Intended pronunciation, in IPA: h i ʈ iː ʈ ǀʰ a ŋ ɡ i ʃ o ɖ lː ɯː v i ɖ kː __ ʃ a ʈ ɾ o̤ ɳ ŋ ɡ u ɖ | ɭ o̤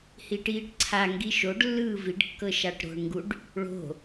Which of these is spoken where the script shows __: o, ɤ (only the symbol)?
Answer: ɤ